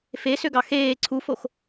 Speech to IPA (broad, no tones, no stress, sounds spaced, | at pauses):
f e s ø ɡ ɑ x eː ǀʰ u f o x